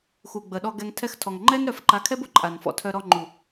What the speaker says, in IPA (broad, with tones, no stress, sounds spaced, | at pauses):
x u˨ ɡ͡b ə˨ ɗ ɔ˧ ɡ ɛ˧ ŋ tʰ ɛ˧ x tʰ ɔ˨ ŋ ŋ͡ǃ ɛ˦ n ɾ œ˨˦ f ǃ a˨˦ kʰ ɛ˦ b ʊ˦ ǃʼ a˨ n f ɔ̰˦˨ tʰ œ˧ ɾ ɔ˧ ŋ͡ǃ u˨